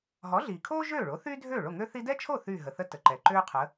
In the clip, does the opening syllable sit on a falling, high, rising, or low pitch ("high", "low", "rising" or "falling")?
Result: rising